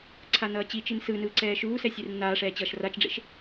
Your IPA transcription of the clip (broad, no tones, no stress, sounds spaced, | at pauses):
ǀʰ a n ʌː t͡ɕ i t͡ʃ i n s ɯ n ɯː ǀ ɛː ʃ uː s ɛ sʲ e r nː aː ʂ ɛː t͡ɕ ʌː ʃ r a t͡ʃ ɖ͡ʐ ḛ ʃ